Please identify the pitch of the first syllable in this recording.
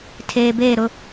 low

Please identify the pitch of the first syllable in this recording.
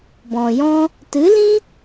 low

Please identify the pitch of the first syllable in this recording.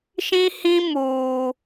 high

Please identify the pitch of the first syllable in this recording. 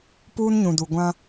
high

